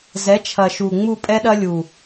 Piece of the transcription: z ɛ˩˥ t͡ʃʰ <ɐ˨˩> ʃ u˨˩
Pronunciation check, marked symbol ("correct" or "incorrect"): correct